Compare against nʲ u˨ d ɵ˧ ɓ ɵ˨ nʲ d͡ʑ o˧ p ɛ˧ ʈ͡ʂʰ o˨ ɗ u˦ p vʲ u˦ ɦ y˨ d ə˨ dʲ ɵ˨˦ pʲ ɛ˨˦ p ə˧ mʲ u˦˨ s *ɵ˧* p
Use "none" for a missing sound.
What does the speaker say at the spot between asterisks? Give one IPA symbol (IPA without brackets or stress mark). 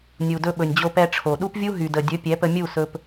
ɵ˧